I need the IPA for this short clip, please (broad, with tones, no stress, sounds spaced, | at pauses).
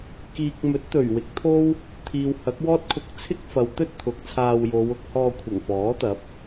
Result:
k iː˨ k̚ m ɵ˨˥ t̚ t̪ ɵ˨˩ ɥ w ɪ˨˥ k̚ t̪ʰ o˥ w | t̪ʰ iː˨ w h ɐ˨˥ k̚ w ɔː˥ t̚ kʰ ʊ˧ k̚ t͡sʰ ɪ˥ k̚ f ɐ˨˧ w t̪ ɵ˥ t̚ t̪ʰ ʊ˨ k̚ t͡sʰ aː˧ w j o˨˧ w ʊ˨˥ k̚ h ɔː˧ kʷʰ ɐ˨˩ ŋ f ɔː˨˥ t̪ ɐ˨˥ p̚